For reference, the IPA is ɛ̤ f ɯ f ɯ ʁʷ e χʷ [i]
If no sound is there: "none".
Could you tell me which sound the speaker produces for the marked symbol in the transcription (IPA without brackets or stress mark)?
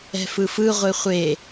e